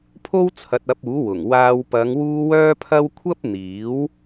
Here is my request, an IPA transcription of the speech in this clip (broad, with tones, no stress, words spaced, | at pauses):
pʰo˥wt͡sʰɐ˨˥t̚ɐ˨˥p̚ uː˨˥wʊ˨˩ŋwaː˧w pɐ˨˧ŋwuː˧ wœː˥pʰɐ˥w kʷʰɐ˥p̚ n̪iː˨˥w